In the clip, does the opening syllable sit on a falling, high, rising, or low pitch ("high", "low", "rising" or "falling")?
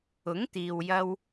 rising